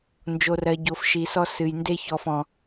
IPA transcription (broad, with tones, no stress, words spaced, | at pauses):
nd͡ʒo˨rɜ˨ ɟo˨fʃi˨sɔ˦ sɨ˨jnde˦ çɔ˦fɔ̃˦